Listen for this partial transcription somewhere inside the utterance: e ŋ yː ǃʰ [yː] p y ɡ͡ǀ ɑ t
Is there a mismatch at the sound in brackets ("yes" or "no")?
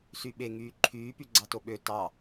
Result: no